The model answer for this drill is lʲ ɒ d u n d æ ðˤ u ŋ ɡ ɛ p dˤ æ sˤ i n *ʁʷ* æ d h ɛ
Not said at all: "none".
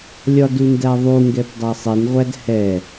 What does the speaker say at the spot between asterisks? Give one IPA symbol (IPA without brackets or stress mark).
ʁʷ